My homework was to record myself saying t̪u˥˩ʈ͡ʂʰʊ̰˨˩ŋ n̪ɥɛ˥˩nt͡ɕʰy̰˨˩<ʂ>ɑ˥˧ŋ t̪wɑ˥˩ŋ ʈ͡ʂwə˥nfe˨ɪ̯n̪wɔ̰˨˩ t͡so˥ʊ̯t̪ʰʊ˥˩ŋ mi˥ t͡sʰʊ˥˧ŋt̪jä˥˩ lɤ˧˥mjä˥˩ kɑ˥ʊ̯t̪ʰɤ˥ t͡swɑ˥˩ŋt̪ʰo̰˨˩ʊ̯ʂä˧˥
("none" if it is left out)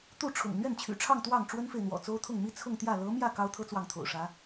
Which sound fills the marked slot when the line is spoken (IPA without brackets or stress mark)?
ʈ͡ʂʰ